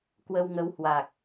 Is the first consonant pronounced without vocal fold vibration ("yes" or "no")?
yes